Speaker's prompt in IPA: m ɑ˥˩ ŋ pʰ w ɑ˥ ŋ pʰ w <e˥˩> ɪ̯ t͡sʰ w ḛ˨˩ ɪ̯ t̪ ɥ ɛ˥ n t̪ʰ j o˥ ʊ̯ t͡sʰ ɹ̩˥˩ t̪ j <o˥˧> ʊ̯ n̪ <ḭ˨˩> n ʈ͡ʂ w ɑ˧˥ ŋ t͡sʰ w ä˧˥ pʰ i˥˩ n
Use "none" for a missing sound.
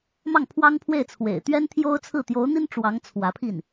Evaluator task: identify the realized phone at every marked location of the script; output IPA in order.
e˥˩, o˧˥, i˥

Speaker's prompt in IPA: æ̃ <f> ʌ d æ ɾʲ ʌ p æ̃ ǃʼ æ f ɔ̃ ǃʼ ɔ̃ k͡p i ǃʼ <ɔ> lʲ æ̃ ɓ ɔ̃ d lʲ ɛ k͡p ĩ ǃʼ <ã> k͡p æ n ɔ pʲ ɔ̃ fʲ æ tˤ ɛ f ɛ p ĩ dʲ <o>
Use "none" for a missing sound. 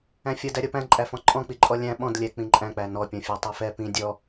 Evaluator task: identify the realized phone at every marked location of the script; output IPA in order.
fʲ, ɔ, æ̃, ɔ

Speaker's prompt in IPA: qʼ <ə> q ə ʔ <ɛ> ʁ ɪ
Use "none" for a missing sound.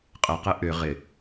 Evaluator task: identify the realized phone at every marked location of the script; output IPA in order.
ə, ʏ

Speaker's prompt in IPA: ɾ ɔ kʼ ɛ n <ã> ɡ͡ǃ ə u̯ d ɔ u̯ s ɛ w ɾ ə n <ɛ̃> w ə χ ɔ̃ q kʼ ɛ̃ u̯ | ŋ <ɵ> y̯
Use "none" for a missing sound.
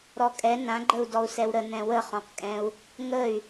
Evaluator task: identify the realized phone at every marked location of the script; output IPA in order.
ã, ɛ̃, ə

